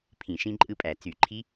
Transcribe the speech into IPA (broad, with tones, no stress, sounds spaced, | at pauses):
pʰ ĩ˧˩˧ ʃ ĩ˦˥ ǃʼ ɯ˦˥ pʼ æ˧˩˧ t͡s y˧˩˧ ǃʰ i˦˥